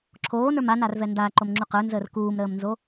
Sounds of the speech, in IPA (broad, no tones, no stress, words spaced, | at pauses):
ǁʰoːnə˞m anarvɛ ndaǃomŋ͡ǁu qə˞nzəːr kuːmɾəːmnzo